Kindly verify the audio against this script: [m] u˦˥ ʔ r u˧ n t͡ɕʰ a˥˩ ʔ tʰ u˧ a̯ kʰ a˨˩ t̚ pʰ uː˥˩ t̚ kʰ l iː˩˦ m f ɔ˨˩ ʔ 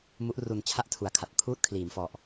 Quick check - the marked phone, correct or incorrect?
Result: correct